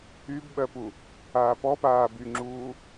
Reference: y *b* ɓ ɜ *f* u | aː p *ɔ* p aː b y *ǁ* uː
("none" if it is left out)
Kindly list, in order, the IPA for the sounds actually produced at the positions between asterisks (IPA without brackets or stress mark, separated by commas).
b, p, ɔ, ŋ͡ǁ